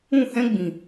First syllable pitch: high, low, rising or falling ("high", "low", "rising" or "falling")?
falling